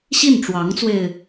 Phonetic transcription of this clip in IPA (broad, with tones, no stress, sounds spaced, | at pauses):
ɕ i˥˩ n ʈ͡ʂ w ɑ˧˥ ŋ t͡s w e˧ ɪ̯